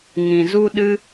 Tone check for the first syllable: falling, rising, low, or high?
low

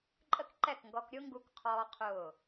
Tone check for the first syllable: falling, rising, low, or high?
high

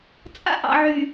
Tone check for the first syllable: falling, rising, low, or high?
high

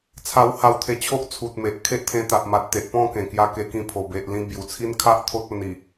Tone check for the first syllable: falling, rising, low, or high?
high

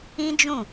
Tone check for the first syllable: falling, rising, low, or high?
high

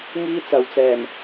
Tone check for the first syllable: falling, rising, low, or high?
high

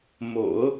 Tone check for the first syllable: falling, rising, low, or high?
low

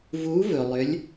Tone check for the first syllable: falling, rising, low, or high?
rising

